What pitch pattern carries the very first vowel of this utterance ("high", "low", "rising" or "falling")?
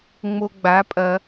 low